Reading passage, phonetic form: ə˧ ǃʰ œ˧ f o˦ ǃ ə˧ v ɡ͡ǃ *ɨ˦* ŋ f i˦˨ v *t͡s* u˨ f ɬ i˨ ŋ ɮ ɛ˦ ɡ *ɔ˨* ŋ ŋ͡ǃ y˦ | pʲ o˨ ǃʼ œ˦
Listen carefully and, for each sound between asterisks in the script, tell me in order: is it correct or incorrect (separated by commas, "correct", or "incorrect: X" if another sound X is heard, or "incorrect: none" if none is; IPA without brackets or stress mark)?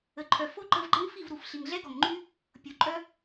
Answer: incorrect: ə˦, incorrect: ɾ, correct